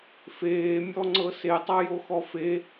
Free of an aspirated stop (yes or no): yes